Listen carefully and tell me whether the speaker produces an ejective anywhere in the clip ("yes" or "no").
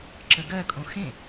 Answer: yes